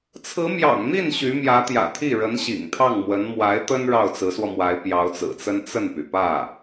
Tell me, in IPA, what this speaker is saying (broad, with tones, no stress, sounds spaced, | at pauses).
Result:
t͡sʰ ɹ̩˧˥ m j ɑ̰˨˩ ŋ n̪ i˥˩ n ɕ y˧˥ m j ä˧˥ t̪ j ä̰˨˩ t̪ʰ i˥˩ ɻ ə˧˥ n ɕ ḭ˨˩ ŋ t̪ʰ ɑ˥˩ ŋ m w ə˧˥ n m w a˧˥ ɪ̯ t̪ ə˥ n ɻ ɑ˥˩ ʊ̯ t͡s ɹ̩˧˥ s w ɔ˧ m w a˧˥ ɪ̯ p j ɑ˧˥ ʊ̯ t͡s ɹ̩˨˩ t͡s ə˥ n t͡s ə˥˩ n p y˩ p ä˥˩